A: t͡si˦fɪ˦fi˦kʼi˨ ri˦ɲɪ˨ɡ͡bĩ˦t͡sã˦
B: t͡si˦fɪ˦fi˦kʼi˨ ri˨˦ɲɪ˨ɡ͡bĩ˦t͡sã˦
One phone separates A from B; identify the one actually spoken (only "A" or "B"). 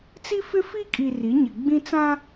B